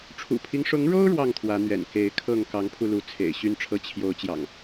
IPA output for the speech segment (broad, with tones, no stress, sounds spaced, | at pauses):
ʈ͡ʂʰ ṵ˨˩ pʰ i˦ ŋ ʂ ʊ˨˦ ŋ ɻ o˦ ʊ̯ ɻ w ɑ˥˨ ŋ t̪ʰ w ä˨˦ n̪ ɥ ɛ̰˨˩ n k e˨˦ ɪ̯ kʰ ɤ˥˨ ŋ k ɑ˨˦ ŋ pʰ u˧ l u˨˦ t͡sʰ ḛ˨˩ ɪ̯ ɕ y˦ n ʈ͡ʂʰ ɤ˦ t͡ɕʰ j o˨˦ ʊ̯ t͡ɕ j ɑ̰˨˩ ŋ